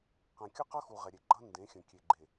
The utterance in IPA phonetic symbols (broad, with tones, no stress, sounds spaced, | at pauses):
q ɛ̃˨ kʲ ʌ˦ q ʌ˦ x u˨ ʁ ɛ˨ ɾʲ e˨ ɡ͡ǃ ʌ˦ n d ẽ˨˦ xʲ ə̃˨ kʲ e˨ ɡ͡ǃ e˨